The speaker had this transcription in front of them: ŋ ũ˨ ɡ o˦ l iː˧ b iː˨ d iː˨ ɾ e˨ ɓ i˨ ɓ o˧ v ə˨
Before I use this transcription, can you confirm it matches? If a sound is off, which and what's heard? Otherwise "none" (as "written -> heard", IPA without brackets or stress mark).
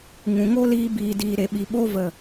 ɡ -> ŋ